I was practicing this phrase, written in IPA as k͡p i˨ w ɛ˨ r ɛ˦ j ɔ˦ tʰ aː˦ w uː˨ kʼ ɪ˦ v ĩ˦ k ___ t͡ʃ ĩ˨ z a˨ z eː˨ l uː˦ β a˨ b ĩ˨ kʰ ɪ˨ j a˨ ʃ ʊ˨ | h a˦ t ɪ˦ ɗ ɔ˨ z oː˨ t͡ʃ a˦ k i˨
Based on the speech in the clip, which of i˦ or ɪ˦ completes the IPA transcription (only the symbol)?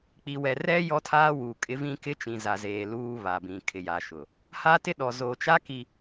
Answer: ɪ˦